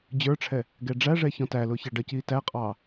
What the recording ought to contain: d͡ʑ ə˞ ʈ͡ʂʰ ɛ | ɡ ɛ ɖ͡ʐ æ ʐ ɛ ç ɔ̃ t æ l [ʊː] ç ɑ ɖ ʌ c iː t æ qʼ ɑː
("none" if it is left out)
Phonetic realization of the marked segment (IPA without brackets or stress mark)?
ʊː